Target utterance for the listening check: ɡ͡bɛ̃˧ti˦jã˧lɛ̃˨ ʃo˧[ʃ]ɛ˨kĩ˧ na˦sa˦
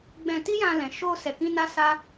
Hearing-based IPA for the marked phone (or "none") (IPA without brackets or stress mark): s